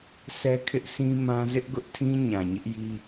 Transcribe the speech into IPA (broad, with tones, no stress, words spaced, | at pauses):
sʰɛ˦kʰɪ˦ʔsĩ˦mã˦ zɪ˦ʔ ɡʊ˦ʔtʰĩ˦ ɲã˨ɲɪ˦ʔji˦